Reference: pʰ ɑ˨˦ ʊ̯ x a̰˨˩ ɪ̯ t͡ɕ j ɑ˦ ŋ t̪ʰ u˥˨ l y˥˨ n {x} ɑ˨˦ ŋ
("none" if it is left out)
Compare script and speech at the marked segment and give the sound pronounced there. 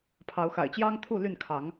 kʰ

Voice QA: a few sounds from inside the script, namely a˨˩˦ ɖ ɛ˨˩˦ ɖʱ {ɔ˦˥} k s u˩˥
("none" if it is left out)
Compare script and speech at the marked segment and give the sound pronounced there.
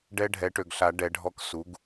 ɔ˦˥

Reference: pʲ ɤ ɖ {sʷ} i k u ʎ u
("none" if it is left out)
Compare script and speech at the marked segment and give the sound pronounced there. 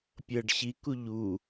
ɕ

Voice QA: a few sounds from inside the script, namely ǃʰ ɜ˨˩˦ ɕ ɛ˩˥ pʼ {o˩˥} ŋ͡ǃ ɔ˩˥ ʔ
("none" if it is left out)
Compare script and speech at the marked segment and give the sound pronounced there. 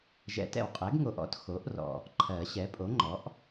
o˩˥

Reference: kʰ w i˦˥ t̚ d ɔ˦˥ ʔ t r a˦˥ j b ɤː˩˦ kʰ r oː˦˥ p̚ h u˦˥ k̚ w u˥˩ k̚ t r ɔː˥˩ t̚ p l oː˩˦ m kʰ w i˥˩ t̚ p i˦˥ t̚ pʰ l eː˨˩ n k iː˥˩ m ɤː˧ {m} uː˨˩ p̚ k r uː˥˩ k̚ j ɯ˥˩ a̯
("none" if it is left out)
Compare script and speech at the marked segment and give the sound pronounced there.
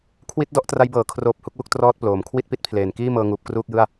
ŋ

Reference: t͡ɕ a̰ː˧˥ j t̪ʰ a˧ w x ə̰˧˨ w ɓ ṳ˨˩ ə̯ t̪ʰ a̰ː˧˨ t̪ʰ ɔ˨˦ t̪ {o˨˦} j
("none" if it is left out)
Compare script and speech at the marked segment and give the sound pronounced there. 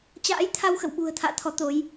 o˨˦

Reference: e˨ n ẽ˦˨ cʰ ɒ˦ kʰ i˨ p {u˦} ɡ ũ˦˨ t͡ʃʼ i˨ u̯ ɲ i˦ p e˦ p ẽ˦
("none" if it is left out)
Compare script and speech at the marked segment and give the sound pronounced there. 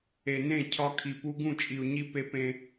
u˦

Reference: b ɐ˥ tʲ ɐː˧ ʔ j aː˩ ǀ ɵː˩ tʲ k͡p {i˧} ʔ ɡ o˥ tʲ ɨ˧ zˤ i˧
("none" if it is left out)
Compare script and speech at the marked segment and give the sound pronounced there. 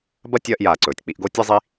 i˧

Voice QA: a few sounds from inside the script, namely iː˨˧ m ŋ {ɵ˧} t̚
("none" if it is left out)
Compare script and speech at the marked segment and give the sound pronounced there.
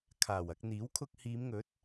ɵ˨˥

